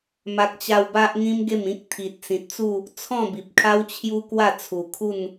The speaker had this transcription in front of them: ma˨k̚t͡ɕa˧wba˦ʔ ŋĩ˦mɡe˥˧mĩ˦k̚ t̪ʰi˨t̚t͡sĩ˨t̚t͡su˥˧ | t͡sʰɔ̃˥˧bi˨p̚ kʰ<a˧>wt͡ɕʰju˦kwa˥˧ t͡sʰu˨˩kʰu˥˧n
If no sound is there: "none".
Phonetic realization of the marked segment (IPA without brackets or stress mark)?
a˦